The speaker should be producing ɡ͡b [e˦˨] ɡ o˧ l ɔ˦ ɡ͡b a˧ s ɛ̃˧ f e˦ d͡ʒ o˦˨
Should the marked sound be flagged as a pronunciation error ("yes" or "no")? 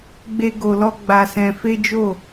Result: yes